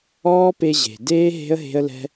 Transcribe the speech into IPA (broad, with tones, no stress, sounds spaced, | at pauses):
ɔː˦ p e˧ ʑ e̤˨ d eː˦ ɦ e̤˦ ə̯ ɦ e̤˦ ə̯ l ɛ̤˦